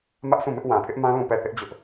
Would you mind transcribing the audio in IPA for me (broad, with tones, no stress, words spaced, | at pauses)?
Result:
mä˦ʔsʰũ˦˨mɪ˦ʔ wã˨pʰɪ˦ʔmã˦ lũ˦˨pɛ˦˨θɪ˦ʔ d͡ʑʊ˦ʔ